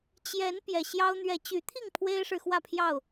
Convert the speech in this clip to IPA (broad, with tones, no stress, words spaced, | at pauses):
t͡ɕjɛ˨˦n pjɛ˨˩ɕjɑ˦ʊ̯ n̪ɥɛ˨˦t͡ɕy˨˦t̪ʰi˥˨ŋ pʰwe˦ɪ̯ʂɻ̩˨xwä˥˨pʰjɑ˥˨ʊ̯